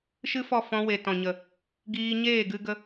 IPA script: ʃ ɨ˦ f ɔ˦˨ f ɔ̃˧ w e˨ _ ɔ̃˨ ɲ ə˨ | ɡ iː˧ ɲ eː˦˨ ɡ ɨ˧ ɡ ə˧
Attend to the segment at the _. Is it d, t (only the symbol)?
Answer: t